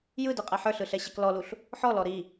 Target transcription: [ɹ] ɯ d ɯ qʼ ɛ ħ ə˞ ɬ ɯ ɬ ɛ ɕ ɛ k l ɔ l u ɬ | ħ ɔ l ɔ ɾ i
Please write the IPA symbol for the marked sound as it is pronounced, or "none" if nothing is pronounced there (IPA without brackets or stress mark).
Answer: j